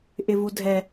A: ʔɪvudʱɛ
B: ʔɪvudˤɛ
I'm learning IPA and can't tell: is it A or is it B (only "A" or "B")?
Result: A